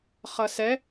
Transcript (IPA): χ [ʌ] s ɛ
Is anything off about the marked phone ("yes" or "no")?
no